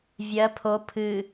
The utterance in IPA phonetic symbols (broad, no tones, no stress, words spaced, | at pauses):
vʲɜ pʰo pʰɨ